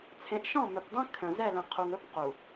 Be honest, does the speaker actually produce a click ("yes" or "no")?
no